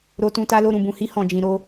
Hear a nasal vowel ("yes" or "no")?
yes